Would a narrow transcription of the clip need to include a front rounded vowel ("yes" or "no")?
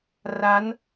no